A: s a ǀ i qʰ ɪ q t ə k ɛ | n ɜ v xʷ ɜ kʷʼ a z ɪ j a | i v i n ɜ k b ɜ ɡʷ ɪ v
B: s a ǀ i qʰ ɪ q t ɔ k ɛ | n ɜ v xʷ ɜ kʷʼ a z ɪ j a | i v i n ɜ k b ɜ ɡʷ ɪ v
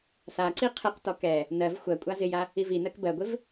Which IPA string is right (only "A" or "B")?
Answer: B